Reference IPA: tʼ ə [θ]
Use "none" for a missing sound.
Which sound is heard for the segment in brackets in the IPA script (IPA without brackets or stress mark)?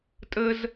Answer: z